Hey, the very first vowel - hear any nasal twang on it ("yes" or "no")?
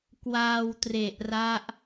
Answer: no